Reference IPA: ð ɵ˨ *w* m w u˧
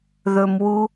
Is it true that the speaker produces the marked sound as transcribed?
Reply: no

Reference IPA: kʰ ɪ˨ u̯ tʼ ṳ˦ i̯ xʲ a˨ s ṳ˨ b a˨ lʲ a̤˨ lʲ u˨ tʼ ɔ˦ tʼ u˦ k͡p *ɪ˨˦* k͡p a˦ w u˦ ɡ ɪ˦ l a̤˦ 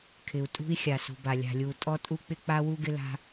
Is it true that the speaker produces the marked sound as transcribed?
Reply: no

